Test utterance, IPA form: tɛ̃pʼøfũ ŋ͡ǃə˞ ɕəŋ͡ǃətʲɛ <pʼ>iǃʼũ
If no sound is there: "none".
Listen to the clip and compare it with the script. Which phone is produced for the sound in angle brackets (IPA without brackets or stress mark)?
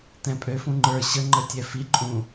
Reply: f